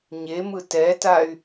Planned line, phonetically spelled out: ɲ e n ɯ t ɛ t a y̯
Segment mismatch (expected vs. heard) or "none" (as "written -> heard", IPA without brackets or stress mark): n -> m